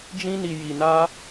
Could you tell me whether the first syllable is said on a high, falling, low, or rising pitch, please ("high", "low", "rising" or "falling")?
high